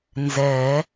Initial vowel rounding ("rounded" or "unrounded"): unrounded